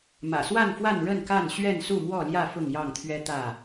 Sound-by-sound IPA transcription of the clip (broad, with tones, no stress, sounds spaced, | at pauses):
m ä̰˨˩ s w a˥˨ n f w a˥˨ n ɻ ə˥˨ n k a˥˨ n ɕ ɥ ɛ˥˨ n s u˥˨ m w ɔ˥˨ l j ä˥˨ f ʊ˥˨ ŋ j ɑ˥˨ ŋ t̪ʰ ɥ ɛ˦ t̪ ä˥˨